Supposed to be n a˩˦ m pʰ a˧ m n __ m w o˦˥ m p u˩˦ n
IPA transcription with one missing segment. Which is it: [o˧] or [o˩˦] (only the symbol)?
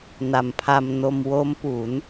o˧